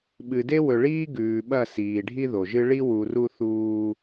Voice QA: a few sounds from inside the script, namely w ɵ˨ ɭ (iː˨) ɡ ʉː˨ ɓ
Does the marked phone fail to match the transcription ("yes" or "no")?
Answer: yes